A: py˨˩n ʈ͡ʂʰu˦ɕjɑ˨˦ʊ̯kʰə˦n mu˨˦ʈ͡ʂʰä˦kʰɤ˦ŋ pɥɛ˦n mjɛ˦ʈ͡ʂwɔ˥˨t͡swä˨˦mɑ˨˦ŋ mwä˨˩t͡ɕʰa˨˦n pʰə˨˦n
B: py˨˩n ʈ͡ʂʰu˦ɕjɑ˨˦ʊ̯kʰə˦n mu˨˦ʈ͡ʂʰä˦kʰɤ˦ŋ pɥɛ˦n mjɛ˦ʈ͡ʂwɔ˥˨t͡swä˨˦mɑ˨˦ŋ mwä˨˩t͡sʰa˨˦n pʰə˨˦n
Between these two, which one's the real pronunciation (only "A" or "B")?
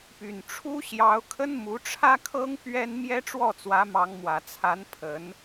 B